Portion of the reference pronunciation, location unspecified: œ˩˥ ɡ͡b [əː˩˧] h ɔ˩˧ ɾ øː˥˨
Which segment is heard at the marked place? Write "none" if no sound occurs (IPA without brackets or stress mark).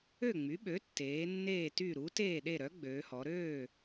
øː˩˧